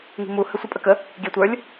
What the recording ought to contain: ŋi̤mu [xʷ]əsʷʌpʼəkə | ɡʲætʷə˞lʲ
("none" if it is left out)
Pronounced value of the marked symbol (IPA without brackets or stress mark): h